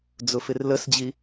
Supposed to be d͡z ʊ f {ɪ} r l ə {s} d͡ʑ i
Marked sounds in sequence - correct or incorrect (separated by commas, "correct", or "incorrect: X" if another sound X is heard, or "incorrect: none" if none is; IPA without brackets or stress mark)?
correct, correct